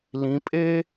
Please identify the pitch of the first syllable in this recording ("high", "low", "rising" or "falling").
rising